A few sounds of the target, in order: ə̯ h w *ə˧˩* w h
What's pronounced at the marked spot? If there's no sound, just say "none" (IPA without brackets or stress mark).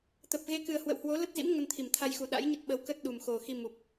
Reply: ə̰˧˨